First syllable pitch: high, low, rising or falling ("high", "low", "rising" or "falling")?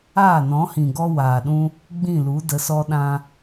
falling